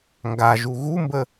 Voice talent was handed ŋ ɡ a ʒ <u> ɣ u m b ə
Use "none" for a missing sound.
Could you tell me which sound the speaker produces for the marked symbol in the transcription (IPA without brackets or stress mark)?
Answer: u